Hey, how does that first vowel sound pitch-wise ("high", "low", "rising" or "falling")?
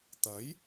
rising